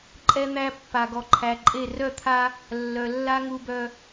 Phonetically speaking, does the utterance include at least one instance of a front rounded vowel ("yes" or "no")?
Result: yes